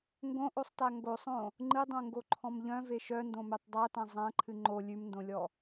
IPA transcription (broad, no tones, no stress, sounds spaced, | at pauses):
ŋ ɡ õ ʔ o sˤ t a ŋ ɡ o sˤ õ | ŋ͡ǃ ɨ dˤ õ ŋ ɡ o ǃʰ ɔ̃ m ʎ œ̃ v e ʃ œ n d õ m ø tˤ dˤ a t ã zˤ ã ǃʰ ɨ ŋ͡ǃ o lʲ ʉ m n d õ lʲ ɔ